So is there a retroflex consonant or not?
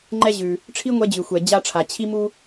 yes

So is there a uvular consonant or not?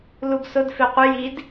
yes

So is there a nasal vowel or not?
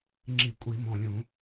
yes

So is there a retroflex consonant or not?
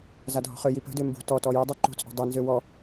no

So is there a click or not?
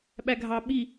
no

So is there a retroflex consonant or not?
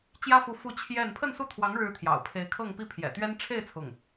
yes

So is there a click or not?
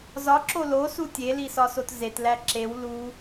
yes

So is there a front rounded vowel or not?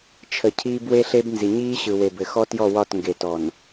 no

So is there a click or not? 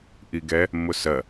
no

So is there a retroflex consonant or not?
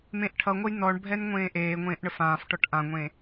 yes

